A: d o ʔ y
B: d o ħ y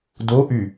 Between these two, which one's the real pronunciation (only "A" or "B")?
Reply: A